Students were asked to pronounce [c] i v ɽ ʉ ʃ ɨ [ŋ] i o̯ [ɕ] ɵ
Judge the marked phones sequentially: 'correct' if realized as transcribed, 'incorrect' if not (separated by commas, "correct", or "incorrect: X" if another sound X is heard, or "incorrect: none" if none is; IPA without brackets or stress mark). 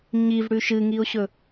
incorrect: ɲ, correct, correct